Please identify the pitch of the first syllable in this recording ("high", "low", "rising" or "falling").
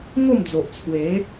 falling